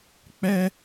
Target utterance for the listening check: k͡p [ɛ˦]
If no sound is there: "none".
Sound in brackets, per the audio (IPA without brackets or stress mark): ɛ˦